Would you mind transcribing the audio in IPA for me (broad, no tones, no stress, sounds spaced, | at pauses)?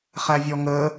χ æ vʲ ɔ ŋ ə